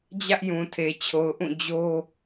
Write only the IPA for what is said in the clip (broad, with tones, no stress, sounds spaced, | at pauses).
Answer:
d͡ʑ ä˦ ʔ j ũ˨ tʰ e˨ t͡ɕʰ o˨ ʊ̯ ʔ ũ˦˨ d͡ʑ o˦